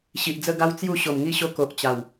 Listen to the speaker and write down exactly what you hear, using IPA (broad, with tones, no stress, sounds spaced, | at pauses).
ɕ i˨ ʔ d͡z ə˥˧ ɡ a˦ w t͡s j u˥˧ ɕ o˨˩ m ŋ i˥˧ ɕ o˧ k o˨ ʔ t͡ɕ a˨˩ w